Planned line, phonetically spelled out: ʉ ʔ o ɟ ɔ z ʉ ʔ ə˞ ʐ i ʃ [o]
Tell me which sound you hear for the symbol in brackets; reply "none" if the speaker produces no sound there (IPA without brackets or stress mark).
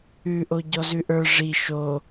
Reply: o